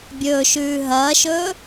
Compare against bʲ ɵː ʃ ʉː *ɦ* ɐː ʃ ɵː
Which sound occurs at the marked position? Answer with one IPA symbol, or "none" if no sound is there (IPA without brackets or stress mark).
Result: ɦ